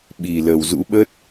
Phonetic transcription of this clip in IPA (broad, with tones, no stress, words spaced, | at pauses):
ɓi˨˩ lə˨˩wzṵ˧˥ ɓə˦˥t̚